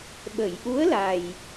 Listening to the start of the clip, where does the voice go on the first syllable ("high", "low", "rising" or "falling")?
low